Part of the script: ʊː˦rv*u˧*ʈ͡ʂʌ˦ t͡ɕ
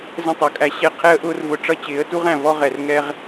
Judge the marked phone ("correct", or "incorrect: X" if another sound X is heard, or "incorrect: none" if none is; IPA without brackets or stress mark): incorrect: ʊ˧